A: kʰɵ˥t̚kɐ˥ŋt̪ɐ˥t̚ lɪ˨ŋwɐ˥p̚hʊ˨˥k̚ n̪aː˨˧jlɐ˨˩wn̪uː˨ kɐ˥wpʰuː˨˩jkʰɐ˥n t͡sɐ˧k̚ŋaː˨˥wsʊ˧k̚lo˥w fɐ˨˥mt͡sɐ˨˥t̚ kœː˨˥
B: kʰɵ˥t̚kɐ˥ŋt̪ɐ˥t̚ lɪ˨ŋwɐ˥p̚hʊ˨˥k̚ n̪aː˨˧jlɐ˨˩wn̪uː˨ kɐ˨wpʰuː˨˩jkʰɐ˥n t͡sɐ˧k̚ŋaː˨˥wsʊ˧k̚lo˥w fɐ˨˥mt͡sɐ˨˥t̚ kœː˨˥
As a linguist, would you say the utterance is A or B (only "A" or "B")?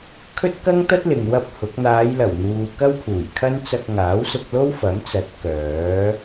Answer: A